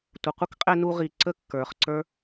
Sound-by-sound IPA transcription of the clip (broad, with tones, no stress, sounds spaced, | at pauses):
tʷ ə˨ qʷ ʌ˦ k qʼ ɛ˧ n u˧ ʁ i˨ ǀ ə˦ kː ə˞˨ χ ǀ ə˞˦